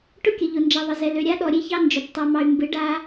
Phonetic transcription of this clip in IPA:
ʈ ʊ˦ kʲ ə˨ ʎ ʊ˨ n d͡ʒ ɛ˨ ðˤ ə˨ z ɛ˨ l ø˨ ɾʲ a˦ ɗ ɔ˨ ɾʲ e˦ ç ɑ˦ n d͡ʒ ʊ˨ p tˤ ɛ˨ m ɑ˨ y̯ m b ɨ˨˦ ɖ a˦

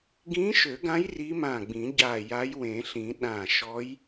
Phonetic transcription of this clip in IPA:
ɡ ĩ˧˥ ʃ ø˨˩˦ ɡ ã˧˥ j r i˧˥ m ã˧˩ ɡ͡b ĩ˨˩˦ ɟ a˧˩ j a˧˥ j w ẽ˨˩˦ ɬ ĩ˨˩˦ ɗ ã˧˩ ʃ ɔ˧˥ j

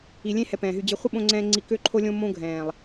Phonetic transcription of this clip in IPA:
i˨ lʲ ẽ˦ h ɛ˧ p ɛ̃ː˨ ɦ y˧ d͡ʑ e˦ χʷ ə˦ ɓ õ˧ ŋ͡ǀ ɛ̃ː˧ ŋ͡ǀ i˧ k ø˦ ǃʰ o˦ lʲ õ˦ m õ˦ ɡʱ ɛ̃ː˨ lˠ

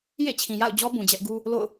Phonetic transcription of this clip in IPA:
j ḛ˦˨ t͡ɕʰ ĩ˨ j a̰˦˨ ʊ̯ d͡ʑ ɔ˦ b ũ˨ d͡ʑ ɛ˦ ʔ ɡ u˦ | l o̰˦˨ ʊ̯

